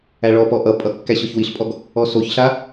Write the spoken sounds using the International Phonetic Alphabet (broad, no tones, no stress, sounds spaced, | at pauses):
æ ɭ ɔ p ɔ ʔ ʌ pʼ ʌ kː æ ɕ ɔ ç w i ɬ pʼ ɔ ɡ | ɔ s o ç ɬ a